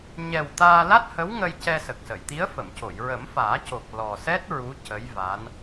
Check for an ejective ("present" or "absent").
absent